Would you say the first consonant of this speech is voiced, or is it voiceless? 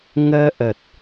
voiced